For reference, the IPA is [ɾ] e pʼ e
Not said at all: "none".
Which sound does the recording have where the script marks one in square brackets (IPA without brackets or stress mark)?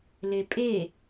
l